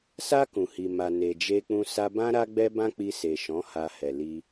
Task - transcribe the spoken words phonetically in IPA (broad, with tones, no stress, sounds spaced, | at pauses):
s a˧ k ũ˨ h i˨ m a˨ n e˨ d͡ʒ e˧ k͡p ũ˧ s a˧ b ã˦ ɾ a˦ ɡ͡b ɛ˦ b ã˦ k͡p i˧ s e˨ ʃ ɔ̃˨˦ h a˧ h ɛ˨ l i˧